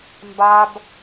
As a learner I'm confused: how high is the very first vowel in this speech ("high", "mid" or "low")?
low